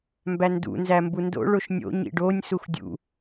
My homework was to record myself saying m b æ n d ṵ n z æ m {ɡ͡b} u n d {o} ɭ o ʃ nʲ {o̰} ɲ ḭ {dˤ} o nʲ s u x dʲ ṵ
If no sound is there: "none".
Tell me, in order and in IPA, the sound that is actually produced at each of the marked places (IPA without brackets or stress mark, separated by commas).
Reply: b, o̰, o̰, ɖ